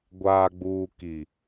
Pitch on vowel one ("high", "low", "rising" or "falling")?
low